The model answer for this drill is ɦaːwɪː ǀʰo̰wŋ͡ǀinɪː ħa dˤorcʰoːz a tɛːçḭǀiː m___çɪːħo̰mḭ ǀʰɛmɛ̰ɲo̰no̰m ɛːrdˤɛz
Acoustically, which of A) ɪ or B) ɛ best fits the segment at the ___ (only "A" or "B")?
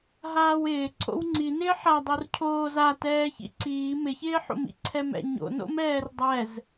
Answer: A